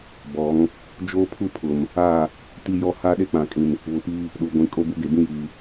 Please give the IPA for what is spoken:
bɔ˨˦ŋ | d͡ʒoː˦pʰu˦pʰʊ˨m | a˦˨ | ti˦jɔ˦ ha˦ɗe˦k͡pã˨kʼĩ˨n | βʊ˨˦piː˦ | ɗu˨ɡʷĩ˨ kʼo˦bu˦ɡe˨ bĩ˦jiː˨

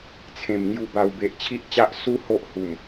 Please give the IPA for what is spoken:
t͡sʰẽ˨˩mŋju˧ ba˧w be˨ʔt͡ɕʰi˦ʔt͡ɕa˦ʔsu˦ ho˦ʔhu˨˩m

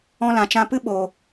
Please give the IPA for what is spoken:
ɔ̃˧lã˨t͡ʃã˧pɨ˦ ɓoː˨

